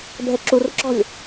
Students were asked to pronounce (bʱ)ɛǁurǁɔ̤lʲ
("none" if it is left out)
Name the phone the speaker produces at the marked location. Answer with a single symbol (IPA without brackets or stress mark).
bʱ